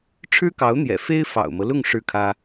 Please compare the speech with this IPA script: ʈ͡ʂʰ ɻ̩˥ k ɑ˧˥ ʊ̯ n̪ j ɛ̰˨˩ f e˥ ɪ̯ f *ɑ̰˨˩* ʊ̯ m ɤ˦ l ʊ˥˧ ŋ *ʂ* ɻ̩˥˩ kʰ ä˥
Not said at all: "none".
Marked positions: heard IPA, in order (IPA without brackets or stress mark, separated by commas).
ɑ̰˨˩, ʂ